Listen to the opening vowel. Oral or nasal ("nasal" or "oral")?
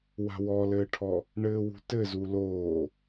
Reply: oral